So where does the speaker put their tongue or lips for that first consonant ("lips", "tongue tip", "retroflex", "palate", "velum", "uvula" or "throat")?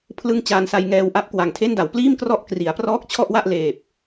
lips